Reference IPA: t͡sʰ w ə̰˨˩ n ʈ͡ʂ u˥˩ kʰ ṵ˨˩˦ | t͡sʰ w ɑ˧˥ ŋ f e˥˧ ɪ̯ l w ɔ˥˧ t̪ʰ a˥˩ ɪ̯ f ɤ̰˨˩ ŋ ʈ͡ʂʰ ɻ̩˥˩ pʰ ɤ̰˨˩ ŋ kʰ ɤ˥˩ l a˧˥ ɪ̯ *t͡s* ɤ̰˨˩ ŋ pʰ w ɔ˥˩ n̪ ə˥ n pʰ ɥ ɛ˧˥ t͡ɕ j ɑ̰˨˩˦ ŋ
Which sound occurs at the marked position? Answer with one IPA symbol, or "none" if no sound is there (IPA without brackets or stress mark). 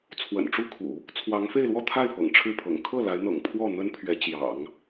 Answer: n̪